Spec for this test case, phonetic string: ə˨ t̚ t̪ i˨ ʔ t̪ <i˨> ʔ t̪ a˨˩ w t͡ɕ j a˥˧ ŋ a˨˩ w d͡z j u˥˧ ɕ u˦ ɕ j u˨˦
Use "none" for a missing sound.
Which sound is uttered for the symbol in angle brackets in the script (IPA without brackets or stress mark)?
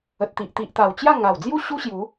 i˨